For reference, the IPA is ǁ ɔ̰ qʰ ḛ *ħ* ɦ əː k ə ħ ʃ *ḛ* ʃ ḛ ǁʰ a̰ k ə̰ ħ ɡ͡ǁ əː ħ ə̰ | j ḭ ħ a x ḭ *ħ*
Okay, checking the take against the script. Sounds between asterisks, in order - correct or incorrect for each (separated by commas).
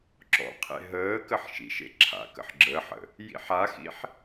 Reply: incorrect, incorrect, correct